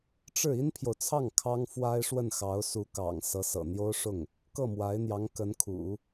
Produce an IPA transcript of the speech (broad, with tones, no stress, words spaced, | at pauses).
ʈ͡ʂɻ̩˥˩ i˥npʰjo˨ʊ̯t͡sʰɑ˥˩ŋ kʰɑ˥ŋfwa˥ɪ̯ʂwə˥˩n xɑ˧˥ʊ̯su˧˥kɑ̰˨˩ŋ sɤ˧˥sɤ̰˨˩n̪jo˥ʊ̯ʂʊ˥˩ŋ | kɤ˥˩mwa˧˥ɪ̯n̪jɑ˧˥ŋ kə˧˥nkʰṵ˨˩˦